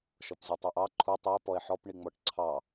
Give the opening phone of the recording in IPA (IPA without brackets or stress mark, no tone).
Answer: ʃ